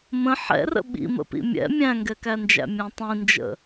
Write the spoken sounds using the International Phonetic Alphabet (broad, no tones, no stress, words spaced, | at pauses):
mə̃ ħɛ̰rə̰ ɓḭmə̰pḭ mʲɛ̰ mʲæ̃ŋɡɛkænd͡ʒæ̰ mʲæ̃tˤĩnd͡ʒə̰